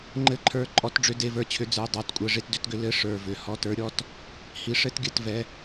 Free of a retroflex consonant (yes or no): no